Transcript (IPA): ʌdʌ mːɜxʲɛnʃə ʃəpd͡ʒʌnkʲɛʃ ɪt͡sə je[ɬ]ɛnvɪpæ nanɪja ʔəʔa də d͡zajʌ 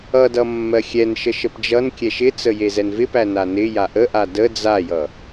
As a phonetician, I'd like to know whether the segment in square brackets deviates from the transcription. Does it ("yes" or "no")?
yes